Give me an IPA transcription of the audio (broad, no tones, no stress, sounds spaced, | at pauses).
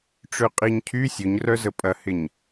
ʈ͡ʂ ø qʼ i ɲ cʰ y sʲ ʊ ɲ r œ z ə pʼ ɐ h ɪ ɲ